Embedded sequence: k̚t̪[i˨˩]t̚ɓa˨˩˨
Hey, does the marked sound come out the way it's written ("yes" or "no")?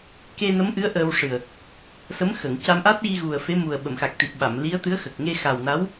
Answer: yes